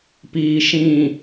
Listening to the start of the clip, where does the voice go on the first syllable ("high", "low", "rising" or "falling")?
low